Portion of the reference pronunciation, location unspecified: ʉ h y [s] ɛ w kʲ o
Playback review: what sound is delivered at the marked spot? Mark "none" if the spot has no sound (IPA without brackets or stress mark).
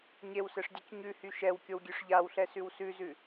ʃ